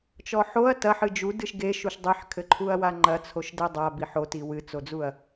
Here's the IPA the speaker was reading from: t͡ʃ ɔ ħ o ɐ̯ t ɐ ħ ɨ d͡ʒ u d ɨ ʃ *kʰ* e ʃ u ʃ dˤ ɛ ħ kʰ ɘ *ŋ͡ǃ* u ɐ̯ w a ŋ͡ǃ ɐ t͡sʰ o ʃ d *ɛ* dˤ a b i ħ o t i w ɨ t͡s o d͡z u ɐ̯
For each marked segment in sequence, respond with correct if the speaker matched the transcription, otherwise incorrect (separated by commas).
incorrect, incorrect, correct